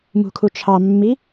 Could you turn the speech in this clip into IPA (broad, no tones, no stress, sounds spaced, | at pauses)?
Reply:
m ṳ kʰ u t͡ʃʰ ɑ mː i